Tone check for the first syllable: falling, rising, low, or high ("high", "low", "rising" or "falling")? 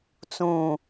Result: falling